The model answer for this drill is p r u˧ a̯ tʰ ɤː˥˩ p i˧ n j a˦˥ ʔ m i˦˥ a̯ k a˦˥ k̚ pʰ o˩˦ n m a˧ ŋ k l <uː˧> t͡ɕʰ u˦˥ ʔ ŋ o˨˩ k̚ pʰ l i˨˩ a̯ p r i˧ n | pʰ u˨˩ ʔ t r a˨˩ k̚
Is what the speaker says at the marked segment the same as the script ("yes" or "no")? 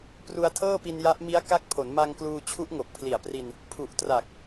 yes